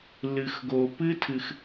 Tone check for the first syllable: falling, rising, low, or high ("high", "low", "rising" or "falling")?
low